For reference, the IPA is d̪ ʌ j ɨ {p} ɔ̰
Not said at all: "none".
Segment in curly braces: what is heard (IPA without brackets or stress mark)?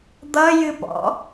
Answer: p